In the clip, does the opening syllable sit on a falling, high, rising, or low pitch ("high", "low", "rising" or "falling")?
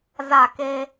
falling